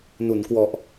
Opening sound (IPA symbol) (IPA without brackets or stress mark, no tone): n